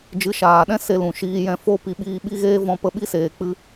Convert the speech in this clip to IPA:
d͡ʒ ɨ˨˦ ʃ aː˨ ɗ ɛ̃˦ s e˧ l ũ˨ ʃ iː˧ j ɛ̃˧ f o˦ p i˧ ɓ iː˧ ɓ i˦ ɣ eː˦ v ɔ̃˧ p ə˦˨ ɓ i˦ s eː˨ k͡p ɨ˦

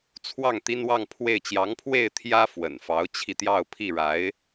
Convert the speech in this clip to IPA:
t͡sʰ w ɑ˥˩ ŋ t̪ i˥ n w ɑ˥˧ ŋ pʰ w e˥˩ ɪ̯ t͡ɕ j ɑ˧˥ ŋ pʰ w e˥˩ ɪ̯ t̪ʰ j ä˥ f w ə̰˨˩ n f ɑ˧˥ ʊ̯ t͡ɕʰ i˧ t̪ j ɑ˥˧ ʊ̯ pʰ i˥˩ ɻ a˧˥ ɪ̯

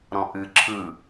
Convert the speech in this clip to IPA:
ɾ ɔ̃ ʔ ɨ ǁʰ ɯ

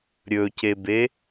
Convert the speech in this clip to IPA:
ɾʲ ɵ c e b e

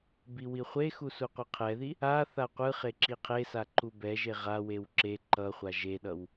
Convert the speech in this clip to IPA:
b i w i χʷ e x u s u qʷ ɯ qʰ ɛ ð i | a θ a qʷ ɯ χ e ǁ i qʰ e s a ǃ u b ɛ ʒ e ʁ a w e w ǁ e ǃ ʌ χʷ a ʒ e ɗ ʌ w

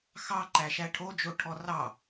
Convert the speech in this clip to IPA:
x ɑ ǃ æ ʃ æ ʈʰ o d͡ʒ o ʈʰ ɔ r ɑ

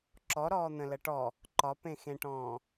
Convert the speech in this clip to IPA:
ǁ ɔ ɾ ɔː n̪ ə̃ l ə ʈ ɔ | ǃ ɒ p ẽ x ẽ ʈ ɔ̃ː

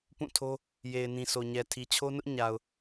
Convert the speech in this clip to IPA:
p ũ˦˨ tʰ o˦ | j e˨ ɪ̯ n ĩ˨ s o˨ ɲ ɛ˨ tʰ i˨ t͡ɕʰ o˦ n ʊ˦ ʔ ɲ a˨ ʊ̯

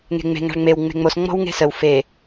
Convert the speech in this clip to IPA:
ŋ e̤ ŋ͡m e̤ ŋ a̤ ɭ ŋ͡m e w ŋ͡m e̤ ŋ͡m o s ŋ͡m ɔ̤ w ŋ e̤ s ə w f e

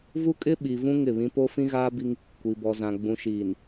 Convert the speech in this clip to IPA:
v u˦ kʼ ɪ˦ ɓ i˨ v ũ˦ ŋ ɪ˦˨ β ĩ˦ p o˦ f ĩ˦ ɣ aː˦ b i˦ ŋ | kʷ i˨ b ɔ˨ z ã˨ ɡ͡b ũ˨ ʃ iː˨ n

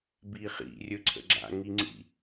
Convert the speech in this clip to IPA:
b i χ ḭ rʲ ɵ ǀʰ ə̰ ɡ͡ǁ a̰ ŋ i ŋ͡ǀ ḭ

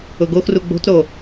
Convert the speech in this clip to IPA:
ʊ ɡ o x r u ɡ͡b o̤ t ɾ o

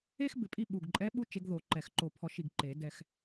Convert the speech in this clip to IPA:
e˥ x b ɪ˨˩˦ pʼ i˦˨ ɓ u˨˩ ɡ ǃʼ ɛ˧˥ ɓ u˧˥ t͡ʃ e˧˥ ɡ ð o˨˩˦ ǃ ɛ˨˩˦ x ǃ o˨˩ pʰ ɔ˨˩˦ ʃ i˨˩ ɡ ǃ e˨˩˦ d ɛ˨˩ x

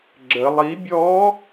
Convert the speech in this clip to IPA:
ɡ͡ǁ ə lˠ i bʲ ɔ

